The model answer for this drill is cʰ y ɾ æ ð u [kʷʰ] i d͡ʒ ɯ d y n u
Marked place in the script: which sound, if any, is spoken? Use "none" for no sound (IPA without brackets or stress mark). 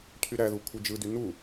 kʷʰ